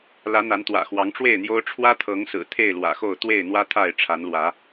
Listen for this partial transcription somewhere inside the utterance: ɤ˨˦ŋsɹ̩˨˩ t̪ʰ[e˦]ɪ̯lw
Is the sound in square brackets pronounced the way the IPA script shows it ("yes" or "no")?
no